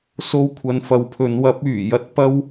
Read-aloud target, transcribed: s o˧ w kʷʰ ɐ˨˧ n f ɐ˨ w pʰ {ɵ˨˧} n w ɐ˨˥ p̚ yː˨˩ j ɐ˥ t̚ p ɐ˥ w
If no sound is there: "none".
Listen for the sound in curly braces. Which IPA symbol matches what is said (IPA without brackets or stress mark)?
ɵ˨˧